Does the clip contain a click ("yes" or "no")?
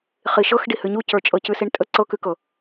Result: yes